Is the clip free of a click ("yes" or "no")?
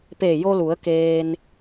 yes